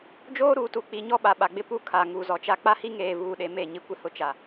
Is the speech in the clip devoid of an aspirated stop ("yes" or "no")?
no